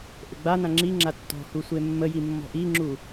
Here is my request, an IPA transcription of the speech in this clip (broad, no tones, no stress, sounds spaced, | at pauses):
ʔ ɘ ɡ͡b a n ã ŋ͡ǁ i ŋ͡ǁ a tː ɔ̤ h u sʷ e mː ə j i mː ɔ̤ ʔ i ŋ͡ǁ u